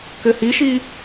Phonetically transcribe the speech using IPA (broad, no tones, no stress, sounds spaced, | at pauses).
k ɘ h i ʃ i